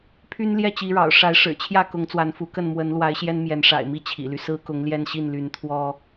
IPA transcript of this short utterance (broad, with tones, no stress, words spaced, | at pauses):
pʰy˦nljɛ˥˨t͡ɕi˨˦ɻɑ̰˨˩ʊ̯ ʂa˨˦ɪ̯ʂɻ̩˨˩t͡ɕʰjä˥˨ kʊ˨˦ŋt͡swa˨˦nfu˨˦kə˥˨n mwə˨˦nlwa˨˦ɪ̯ ɕjɛ˦nmjɛ˨˦n ʂa̰˨˩ɪ̯mi˥˨ t͡ɕʰḭ˨˩ly˦ sɹ̩˦kʊ˨˦ŋljɛ˥˨nɕi˥˨n ly˨˦nt̪ʰwɔ˦